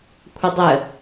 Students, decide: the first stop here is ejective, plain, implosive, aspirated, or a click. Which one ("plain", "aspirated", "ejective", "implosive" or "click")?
aspirated